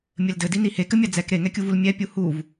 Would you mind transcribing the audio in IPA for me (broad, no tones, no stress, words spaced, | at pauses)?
mʲɘldɘdini hekɘmʲa d͡zɛk ɾeŋɛkʲuvul mʲɛpʲu huv